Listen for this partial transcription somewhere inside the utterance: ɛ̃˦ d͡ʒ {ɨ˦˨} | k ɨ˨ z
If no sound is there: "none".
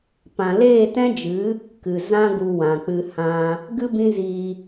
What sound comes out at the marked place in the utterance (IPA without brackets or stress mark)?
ɨ˨˦